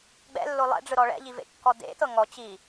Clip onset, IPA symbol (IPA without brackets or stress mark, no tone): ɡ͡b